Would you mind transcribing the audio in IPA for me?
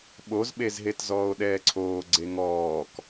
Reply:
ɓ o z ɓ e z ɦ e t z ɔː o̯ ɗ ɛː ǀʰ oː ɡ͡ǀ e ŋ ɔː k

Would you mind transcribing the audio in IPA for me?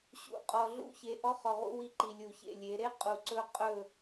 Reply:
ɕ ṵ˨ qʼ ɔ˨ ɮ ṵ˦ ç e˨ ʔ ɔ˦ χ ɔ˨ ʁ ṵ˦ w i˦ ǃ i˨ lʲ u˨ ç ḛ˦˨ lʲ e˨˦ ɾ e˦ qʼ u˨ ǀ ɵ˦ qʼ ɵ˦˨

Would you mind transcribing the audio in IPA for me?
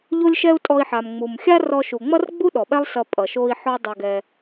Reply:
ʎ o˦ lʲ ʃ ɛ˦ u̯ tʼ ɔ˧ i̯ ħ a˨ m ŋ͡m u˨ m xʲ a˦ r ɔ˧ ʃ u˨ ŋ͡m ʌ˦ r ɡ͡b u˦ ɗ ɔ˨ ɓ ɛ˦ lˠ s ʌ˧ pʼ ʌ˨ ʃ o˧ i̯ ħ ɔ˦ dˤ ʌ˧ ɡ ɛ˧

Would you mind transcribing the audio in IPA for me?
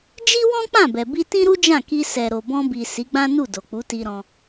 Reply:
d͡ʒ i˦ w ɔ̃˦ k͡p ã˦˨ b ɛ˨ b i˧ t ĩ˦ ɾ u˦ d͡ʒ ã˦˨ k i˧ s ɛ˨ ɾ o˨ b ɔ̃˧ b i˨ s i˨˦ ɡ͡b ã˦ n u˦˨ d o˨ k͡p u˨˦ t i˧ ɾ ɔ̃˧

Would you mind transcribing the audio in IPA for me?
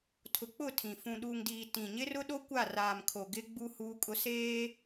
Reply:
tʰ ʊ˨ k͡p ʊ˦˨ tʰ ĩ˨ f ũ˨ ɗ u˨ ŋ d iː˨ t ĩ˨ ɲ ɪ˦ r ʊ˦ ɗ o˦ kʷ a˦˨ r aː˨ m kʰ o˨ ɡ ɪ˦ ɡ͡b u˦ h uː˦ kʼ ʊ˦ s eː˦

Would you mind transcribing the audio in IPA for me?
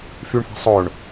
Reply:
f y ɳ θ a̤ sˤ o ɳ

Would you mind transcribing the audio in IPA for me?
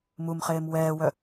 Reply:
m u m χ eː m w ɛː w œ

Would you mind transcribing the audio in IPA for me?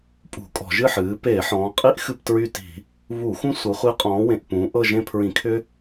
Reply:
pʼ ṳ˧˩˧ kʼ ɔ̤˧˩˧ ʒ ɨ˦˨ ħ ɨː˩˧ p eː˧˩˧ ħ ɔ̃ː˩˧ qʼ i˦ ʔ x ɨ˦˨ p t ɹ y˦˨ t i̤˧˩˧ | β u˧˩˧ x ũ˦ sʷ ɤ˩˧ χʷ i˨˥ qʼ ɔ̃ː˩˧ w ẽ˨˩ ʔ p ũː˩˧ ʔ ɤ˦˨ ʒ ẽ˦˨ pʰ ɹ ĩ˧˩˧ kʰ ʏ˦

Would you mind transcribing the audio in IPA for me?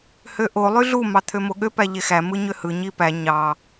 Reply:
h ø ʔ o lˠ y ɮ u m ɑ t̪ʰ ø m o ɠ ø p æ ʎ e x æ m ɯ ɲ ø h ɯ ɲ i p æ ɲ ɑ

